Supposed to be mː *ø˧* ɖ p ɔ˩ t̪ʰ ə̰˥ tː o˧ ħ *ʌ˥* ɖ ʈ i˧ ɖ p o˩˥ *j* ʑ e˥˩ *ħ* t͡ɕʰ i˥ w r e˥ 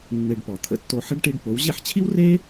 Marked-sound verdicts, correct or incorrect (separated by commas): incorrect, incorrect, incorrect, correct